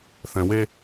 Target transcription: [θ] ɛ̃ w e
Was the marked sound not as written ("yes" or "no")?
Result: no